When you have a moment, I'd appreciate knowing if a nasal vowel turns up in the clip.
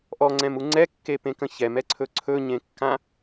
yes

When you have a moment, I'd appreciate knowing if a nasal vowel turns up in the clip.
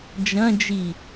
yes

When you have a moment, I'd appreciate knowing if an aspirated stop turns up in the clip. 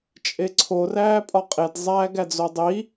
yes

